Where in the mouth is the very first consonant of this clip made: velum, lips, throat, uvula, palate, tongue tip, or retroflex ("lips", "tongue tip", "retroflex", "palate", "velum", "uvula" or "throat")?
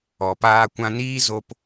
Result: lips